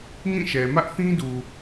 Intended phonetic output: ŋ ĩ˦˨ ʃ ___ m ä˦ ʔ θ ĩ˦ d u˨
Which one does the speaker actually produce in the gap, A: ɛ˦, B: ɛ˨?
B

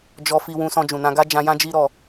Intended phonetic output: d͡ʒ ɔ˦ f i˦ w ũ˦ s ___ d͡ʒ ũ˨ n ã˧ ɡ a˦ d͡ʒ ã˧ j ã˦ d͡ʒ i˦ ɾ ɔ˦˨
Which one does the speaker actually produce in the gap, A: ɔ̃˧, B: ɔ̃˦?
A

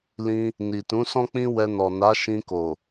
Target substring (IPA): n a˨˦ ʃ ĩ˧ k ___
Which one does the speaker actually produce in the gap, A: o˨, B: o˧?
A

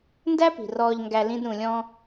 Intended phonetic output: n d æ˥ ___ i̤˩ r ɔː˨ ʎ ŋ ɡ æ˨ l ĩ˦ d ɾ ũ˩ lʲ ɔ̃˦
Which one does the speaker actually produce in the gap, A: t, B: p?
B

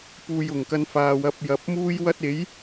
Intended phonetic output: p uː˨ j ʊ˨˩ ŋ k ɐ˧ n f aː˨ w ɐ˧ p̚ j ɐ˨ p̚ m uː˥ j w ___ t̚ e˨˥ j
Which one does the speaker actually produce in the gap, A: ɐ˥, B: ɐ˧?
A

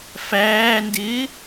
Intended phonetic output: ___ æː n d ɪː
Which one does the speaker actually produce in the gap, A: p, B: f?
B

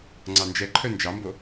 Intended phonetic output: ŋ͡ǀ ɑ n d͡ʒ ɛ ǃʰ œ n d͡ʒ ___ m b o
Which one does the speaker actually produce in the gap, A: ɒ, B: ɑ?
B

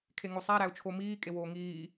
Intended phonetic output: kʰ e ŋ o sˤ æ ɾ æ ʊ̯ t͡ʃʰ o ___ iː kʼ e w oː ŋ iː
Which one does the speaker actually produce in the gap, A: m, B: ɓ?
A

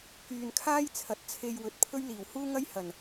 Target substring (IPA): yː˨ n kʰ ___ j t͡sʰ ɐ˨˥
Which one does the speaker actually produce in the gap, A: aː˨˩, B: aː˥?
B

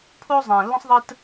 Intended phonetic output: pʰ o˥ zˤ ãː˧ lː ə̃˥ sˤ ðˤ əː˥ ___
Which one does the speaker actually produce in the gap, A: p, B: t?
B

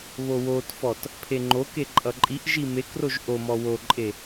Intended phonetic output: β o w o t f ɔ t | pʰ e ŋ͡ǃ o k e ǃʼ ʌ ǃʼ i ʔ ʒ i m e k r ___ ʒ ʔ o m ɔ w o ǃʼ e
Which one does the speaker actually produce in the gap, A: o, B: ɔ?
A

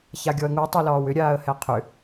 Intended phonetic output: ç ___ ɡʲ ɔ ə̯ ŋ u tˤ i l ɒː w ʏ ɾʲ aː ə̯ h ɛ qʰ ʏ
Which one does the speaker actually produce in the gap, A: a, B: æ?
A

